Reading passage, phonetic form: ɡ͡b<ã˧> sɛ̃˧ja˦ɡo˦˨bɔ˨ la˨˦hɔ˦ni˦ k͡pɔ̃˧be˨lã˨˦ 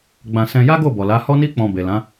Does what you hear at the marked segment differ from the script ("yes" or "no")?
no